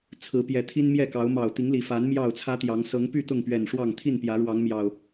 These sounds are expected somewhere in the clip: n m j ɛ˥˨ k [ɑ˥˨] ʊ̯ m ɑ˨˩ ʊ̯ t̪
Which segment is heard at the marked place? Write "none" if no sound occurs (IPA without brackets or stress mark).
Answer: ɑ˨˦